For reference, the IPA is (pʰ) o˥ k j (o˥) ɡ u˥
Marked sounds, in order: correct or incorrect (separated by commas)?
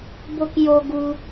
incorrect, correct